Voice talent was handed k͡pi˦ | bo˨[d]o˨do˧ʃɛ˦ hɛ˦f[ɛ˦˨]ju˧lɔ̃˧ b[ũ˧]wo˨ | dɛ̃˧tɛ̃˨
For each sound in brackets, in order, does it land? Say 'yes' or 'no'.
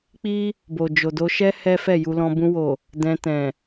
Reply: no, yes, yes

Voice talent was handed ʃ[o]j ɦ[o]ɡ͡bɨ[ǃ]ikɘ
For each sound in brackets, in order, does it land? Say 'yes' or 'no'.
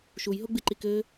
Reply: no, yes, yes

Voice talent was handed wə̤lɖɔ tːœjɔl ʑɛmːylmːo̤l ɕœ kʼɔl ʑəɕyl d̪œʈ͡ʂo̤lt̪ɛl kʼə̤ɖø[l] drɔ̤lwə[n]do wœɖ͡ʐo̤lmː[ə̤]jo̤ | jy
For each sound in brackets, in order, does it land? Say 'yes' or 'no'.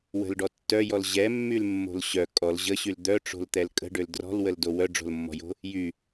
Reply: yes, no, no

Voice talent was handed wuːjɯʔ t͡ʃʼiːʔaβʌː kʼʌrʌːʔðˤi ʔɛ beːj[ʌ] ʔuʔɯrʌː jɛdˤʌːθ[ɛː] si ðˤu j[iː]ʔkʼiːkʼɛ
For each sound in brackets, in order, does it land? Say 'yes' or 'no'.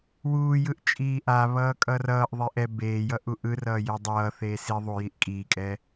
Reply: yes, no, no

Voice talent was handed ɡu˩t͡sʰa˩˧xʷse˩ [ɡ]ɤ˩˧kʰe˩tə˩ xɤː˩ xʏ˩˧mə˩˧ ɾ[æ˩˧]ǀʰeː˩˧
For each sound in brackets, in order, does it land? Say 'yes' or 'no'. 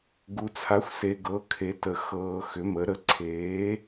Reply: yes, no

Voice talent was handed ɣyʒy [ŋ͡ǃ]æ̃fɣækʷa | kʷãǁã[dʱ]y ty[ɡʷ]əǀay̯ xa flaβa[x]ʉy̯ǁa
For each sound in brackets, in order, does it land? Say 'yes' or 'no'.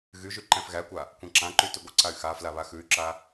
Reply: no, no, yes, yes

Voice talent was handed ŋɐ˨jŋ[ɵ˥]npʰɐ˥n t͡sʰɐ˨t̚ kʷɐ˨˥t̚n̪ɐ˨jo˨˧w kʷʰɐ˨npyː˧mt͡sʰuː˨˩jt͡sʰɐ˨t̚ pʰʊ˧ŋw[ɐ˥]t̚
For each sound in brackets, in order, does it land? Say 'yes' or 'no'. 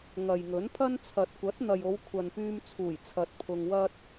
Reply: no, yes

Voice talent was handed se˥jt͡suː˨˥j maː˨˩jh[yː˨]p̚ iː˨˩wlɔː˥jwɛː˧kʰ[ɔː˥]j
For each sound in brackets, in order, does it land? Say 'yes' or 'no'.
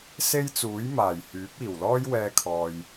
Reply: no, no

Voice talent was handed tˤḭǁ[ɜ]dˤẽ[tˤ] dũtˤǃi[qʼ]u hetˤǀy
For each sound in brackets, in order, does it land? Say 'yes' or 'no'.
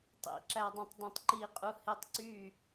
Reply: no, yes, yes

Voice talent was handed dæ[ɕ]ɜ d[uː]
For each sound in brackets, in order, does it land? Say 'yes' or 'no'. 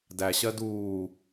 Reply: yes, yes

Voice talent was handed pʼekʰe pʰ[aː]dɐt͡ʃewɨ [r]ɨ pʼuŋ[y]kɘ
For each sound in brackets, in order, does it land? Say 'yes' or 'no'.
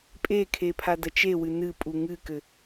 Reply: no, no, no

